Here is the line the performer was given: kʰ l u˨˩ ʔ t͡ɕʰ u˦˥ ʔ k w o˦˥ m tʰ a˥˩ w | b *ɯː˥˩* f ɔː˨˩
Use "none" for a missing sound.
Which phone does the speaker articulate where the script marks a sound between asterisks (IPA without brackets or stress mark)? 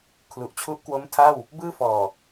ɯː˥˩